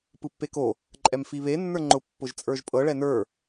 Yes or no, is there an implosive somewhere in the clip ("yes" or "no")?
no